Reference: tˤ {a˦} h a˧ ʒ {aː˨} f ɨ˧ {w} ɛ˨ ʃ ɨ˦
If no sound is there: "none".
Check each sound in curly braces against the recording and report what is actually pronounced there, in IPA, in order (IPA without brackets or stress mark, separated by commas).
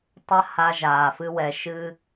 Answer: a˦, aː˨, w